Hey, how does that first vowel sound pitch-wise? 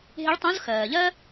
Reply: rising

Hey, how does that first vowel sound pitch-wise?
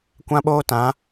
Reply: high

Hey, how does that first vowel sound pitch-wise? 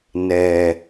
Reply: low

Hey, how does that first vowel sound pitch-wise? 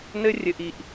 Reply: high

